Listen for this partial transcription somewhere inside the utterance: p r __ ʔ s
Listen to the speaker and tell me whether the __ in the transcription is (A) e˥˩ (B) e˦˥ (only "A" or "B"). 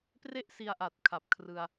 A